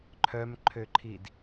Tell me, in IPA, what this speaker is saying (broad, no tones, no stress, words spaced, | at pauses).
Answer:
ǃʰœmǃʰøǃʰid